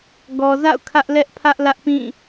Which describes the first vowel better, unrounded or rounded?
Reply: rounded